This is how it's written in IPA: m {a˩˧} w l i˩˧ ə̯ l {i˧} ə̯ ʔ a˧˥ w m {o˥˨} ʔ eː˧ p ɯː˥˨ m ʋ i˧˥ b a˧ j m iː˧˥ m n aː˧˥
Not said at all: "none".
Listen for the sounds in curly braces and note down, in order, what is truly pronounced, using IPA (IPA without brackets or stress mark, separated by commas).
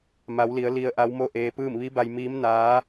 a˩˧, i˧, o˥˨